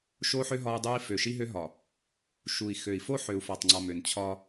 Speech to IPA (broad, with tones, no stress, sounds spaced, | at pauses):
ʃ o˦ ħ ø˦ ɦ ɒ˦ u̯ dˤ u˦ i̯ f ø˨ ʃ i˦ ɦ ø˦ ɦ ɒ˨ | ʃ u˨ i̯ x ø˨ i̯ f o˦ ħ ø˨ u̯ f ɒ˨ tˤ ŋ͡ǀ ɒ˨ m ø˨ n t͡ɕʰ ɒ˦